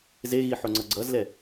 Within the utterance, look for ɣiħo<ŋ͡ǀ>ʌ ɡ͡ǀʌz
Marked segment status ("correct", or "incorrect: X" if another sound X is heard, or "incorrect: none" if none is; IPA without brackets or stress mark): correct